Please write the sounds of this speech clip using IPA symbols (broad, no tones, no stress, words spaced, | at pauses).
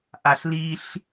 ʔaɬliɬ